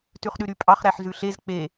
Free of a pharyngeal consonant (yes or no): no